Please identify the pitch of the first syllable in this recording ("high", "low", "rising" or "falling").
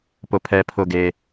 high